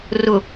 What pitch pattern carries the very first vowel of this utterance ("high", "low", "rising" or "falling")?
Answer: low